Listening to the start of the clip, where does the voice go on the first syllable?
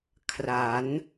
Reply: rising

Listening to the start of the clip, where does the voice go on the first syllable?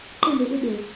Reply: falling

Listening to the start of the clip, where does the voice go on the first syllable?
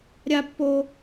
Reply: high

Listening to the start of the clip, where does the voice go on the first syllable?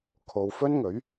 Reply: low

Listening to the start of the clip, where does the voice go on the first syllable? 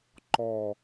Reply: low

